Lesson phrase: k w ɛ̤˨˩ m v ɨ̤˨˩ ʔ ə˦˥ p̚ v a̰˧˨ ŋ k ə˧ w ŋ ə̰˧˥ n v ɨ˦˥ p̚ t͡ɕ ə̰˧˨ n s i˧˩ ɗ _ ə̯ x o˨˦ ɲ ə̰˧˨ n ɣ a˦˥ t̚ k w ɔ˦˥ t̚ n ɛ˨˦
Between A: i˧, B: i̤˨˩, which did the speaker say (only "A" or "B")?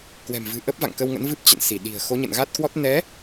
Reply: B